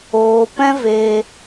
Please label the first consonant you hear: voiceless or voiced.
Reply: voiceless